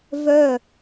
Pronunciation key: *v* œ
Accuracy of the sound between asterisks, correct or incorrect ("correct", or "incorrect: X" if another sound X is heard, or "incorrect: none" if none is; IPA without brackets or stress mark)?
correct